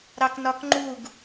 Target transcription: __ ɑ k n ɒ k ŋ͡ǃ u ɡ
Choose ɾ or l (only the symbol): ɾ